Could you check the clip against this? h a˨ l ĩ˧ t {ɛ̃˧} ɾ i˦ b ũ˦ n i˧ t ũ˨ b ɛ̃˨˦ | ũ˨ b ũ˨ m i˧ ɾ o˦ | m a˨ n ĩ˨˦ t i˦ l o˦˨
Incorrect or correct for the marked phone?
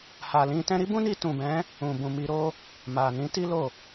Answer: correct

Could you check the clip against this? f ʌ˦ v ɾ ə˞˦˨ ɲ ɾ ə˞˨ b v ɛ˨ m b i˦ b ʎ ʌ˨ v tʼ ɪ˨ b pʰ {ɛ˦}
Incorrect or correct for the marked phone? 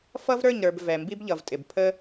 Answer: incorrect: ə˦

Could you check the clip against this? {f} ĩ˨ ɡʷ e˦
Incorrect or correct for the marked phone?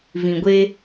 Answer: incorrect: v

